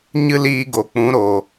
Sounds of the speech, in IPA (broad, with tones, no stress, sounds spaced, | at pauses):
ɲ ɨ˦ l iː˧ ɡ o˨ k͡p ũ˨˦ ɾ o˨